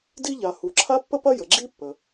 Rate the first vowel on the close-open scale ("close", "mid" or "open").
close